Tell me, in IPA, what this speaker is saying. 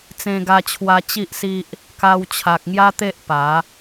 t͡s ẽ˧ ɡ a˧ t͡ɕʰ w a˧ t͡ɕ i˦ ʔ s i˦ ʔ | k a˧ w t͡ɕʰ a˨ k̚ ŋ j a˦ t̪ e˦ ʔ p a˨˦

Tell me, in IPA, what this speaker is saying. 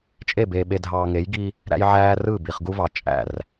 t͡ʃʼ e˦˨ b eː˨ ɓ e˨ dʱ ɑː˨ ŋ e˨˦ j ɡ i˦ | ɾ æ̰˦ j ʕ æː˦ r ɯ˦˨ b i˨ χ ɡ u˦ v ɑ˨ t͡ʃʼ æ̰˦˨ r

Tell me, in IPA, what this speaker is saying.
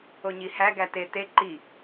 o ɲ i h æ ɡ æ t e t e ǃ i

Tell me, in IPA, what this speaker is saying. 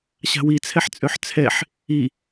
ɕ a̤ w i t͡sʰ ɛ ħ t͡sʼ ø ħ t͡sʰ ɛ ħ | i

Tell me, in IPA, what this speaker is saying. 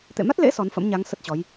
t̪ ḛ˧˨ m a˦˥ t̚ l ḛ˧˥ s ɔ˨˦ n f ə̰˧˥ m ɲ a˨˦ ŋ s ə˦˥ t̚ t͡ɕ ɔ˨˦ j

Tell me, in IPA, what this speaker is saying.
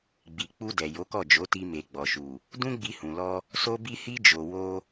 ɡ͡b i˨ k͡p u˧ d ɛ˨ j o˨˦ k ɔ˦˨ d͡ʒ o˨˦ t i˧ m e˨ ɡ͡b ɔ˨ ʃ u˨ | d ũ˦ ɡ͡b i˧ h ũ˨ l ɔ˧ | s o˧ b i˧ h i˧ d͡ʒ o˨ w o˧

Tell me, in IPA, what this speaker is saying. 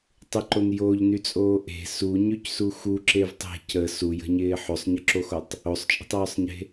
tˤ ɪ ǃ o n j o ʎ n y t͡sʼ oː ʔ e̤ s u ɲ y c s u x u ǁ e v tˤ e̤ c ə s u j ə̤ ɲ ɪː ħ o sˤ ɲ ə ǁ o x o tˤ | o sˤ t͡ʃʼ ə̤ tˤ œː sˤ ɲ e̤

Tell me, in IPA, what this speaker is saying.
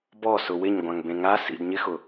b ɔ s ʊ w ɪ ɲ ɡʷ ã ŋ b ẽ ŋ a s ḭ d ɲ ɪ x ʊ

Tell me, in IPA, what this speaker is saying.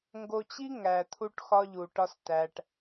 ŋ ɡ o˧ t͡ɕ i˦ ŋ æ˨ t̪ʰ u˦ ʈ x ɒ˦ ʎ u˨ ʈ ɒ˧ s t æ˨ ʈ

